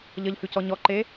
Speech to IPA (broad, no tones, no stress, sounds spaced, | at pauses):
ʎ ʌ ʎ h ʉ c ɔ ɲ ɔ ǃ eː